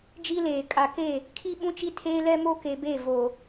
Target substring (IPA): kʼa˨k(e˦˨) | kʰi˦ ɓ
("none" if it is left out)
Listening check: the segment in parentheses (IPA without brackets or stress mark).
e˦˨